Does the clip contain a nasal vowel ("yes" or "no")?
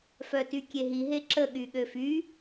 no